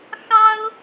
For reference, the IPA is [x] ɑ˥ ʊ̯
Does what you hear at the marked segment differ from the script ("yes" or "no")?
no